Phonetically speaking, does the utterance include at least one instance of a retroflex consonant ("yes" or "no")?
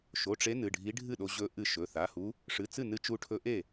yes